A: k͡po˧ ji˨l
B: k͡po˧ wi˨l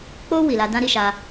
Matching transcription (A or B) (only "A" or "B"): B